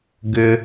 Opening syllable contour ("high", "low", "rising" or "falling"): high